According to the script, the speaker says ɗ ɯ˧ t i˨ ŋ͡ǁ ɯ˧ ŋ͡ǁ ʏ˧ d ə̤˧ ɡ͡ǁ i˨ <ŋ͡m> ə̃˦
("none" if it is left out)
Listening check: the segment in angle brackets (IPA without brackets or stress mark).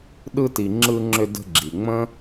ŋ͡m